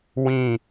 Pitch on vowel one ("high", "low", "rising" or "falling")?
falling